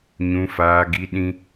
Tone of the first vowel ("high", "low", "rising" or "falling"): high